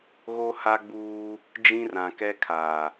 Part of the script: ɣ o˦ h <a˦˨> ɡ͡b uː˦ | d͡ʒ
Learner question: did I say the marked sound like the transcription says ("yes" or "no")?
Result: no